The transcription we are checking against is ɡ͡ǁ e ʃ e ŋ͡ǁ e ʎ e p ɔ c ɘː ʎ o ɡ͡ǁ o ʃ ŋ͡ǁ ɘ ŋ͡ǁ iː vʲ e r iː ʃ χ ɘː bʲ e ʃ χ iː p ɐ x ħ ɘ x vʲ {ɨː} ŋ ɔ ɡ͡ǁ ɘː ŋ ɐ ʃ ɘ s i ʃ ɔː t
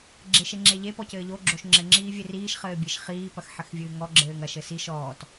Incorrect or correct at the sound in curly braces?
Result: correct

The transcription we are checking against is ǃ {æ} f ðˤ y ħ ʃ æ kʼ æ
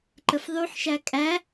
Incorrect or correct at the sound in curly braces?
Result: incorrect: ə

